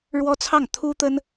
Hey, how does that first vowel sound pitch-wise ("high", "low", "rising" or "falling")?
high